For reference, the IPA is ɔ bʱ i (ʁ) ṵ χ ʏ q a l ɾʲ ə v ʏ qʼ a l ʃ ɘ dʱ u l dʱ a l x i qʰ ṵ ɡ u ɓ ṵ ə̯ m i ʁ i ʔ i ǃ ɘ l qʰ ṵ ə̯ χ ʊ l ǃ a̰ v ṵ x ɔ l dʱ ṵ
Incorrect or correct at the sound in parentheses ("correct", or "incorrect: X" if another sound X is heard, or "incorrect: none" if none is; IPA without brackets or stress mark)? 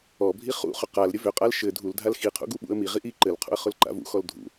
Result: incorrect: χ